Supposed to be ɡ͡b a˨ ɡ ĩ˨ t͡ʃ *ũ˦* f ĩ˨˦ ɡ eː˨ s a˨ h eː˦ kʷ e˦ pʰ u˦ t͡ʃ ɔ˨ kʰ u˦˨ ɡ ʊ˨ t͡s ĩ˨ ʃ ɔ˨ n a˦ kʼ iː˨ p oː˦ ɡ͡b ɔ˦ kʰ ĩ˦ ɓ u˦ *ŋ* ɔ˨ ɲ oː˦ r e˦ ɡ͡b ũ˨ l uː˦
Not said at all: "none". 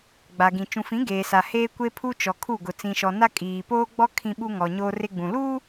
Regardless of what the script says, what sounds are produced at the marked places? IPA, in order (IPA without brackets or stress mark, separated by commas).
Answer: ũ˨, ŋ